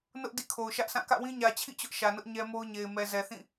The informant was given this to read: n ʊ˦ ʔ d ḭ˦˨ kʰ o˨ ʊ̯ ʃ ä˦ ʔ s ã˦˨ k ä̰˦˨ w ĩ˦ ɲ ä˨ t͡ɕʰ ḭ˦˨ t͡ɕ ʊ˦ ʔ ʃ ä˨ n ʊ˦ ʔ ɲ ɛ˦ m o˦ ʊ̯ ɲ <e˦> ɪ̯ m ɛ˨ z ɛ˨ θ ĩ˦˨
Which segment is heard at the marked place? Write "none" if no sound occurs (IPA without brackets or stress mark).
e˨